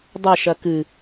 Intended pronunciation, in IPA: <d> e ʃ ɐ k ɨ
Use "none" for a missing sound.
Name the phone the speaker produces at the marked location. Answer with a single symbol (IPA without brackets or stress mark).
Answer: dˤ